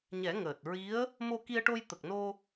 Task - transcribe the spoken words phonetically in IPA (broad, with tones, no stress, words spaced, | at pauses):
ɲɛ˨˩˦ŋəː˨˩t̚ ɹi˧˥ə̯ | mo˧ki˧ə̯ʈo˧j t̪ə˨˩k̚no˧